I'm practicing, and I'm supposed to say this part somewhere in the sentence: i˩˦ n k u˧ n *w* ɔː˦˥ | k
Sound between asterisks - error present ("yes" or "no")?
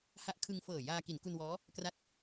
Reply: no